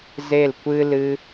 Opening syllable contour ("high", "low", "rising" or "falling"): falling